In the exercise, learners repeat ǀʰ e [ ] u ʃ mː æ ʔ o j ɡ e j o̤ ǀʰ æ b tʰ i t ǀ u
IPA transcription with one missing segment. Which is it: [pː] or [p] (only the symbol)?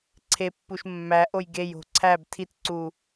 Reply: pː